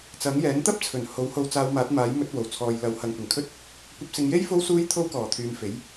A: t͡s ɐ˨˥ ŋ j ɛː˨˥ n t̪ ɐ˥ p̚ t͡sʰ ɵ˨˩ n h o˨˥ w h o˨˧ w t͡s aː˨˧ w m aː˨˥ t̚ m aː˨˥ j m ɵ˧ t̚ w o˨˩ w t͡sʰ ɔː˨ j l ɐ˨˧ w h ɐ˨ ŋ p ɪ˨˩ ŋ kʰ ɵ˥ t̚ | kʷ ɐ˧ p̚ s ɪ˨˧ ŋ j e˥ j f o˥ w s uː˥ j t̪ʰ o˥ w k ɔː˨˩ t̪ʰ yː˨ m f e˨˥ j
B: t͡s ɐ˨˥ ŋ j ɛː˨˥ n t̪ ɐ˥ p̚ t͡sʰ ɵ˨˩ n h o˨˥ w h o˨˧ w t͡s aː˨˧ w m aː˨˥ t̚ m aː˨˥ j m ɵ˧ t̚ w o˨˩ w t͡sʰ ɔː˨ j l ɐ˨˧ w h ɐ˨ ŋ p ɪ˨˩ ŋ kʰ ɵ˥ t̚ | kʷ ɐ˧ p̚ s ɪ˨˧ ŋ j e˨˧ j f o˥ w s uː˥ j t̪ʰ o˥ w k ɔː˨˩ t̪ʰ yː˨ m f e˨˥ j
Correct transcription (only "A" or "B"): A